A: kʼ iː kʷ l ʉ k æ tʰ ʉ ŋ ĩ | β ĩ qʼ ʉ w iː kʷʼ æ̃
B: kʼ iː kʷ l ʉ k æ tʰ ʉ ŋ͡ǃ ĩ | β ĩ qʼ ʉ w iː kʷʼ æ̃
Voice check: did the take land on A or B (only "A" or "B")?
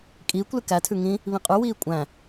A